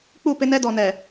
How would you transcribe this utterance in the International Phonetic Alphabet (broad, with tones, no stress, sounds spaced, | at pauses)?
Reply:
k͡p u˦˨ p ɪ˦ n ɛ˦ d ɔ˨ n ɛ˨